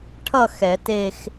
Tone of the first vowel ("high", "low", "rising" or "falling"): falling